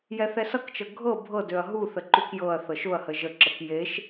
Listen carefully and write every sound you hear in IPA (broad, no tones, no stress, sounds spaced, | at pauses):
j ɛ θ ɛ s ʌ k t͡ʃ ɤ ɡʱ ɤ bʱ ɤ d ø ɐ̯ ɦ u θ ə ǃ u k j ɤ ɐ̯ θ ɤ ʃ ʊ ɐ̯ h ə ʒ ə ǁ ə k j e ʃ